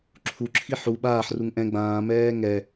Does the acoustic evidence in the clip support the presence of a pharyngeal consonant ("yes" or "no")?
yes